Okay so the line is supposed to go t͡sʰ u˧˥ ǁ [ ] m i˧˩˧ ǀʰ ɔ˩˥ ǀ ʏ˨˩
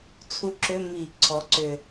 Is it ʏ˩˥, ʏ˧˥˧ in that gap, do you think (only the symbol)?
ʏ˧˥˧